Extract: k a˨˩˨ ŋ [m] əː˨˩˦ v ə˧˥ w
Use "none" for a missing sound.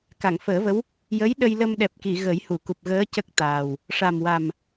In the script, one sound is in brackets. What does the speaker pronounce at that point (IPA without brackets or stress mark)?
f